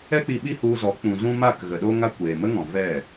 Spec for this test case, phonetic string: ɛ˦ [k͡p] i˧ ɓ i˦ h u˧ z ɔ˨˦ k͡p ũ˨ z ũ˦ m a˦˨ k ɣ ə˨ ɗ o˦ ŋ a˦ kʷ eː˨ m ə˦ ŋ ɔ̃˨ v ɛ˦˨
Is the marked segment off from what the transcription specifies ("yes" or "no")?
no